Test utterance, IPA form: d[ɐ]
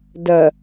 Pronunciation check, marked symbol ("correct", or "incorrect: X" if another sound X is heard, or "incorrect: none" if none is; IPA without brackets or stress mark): correct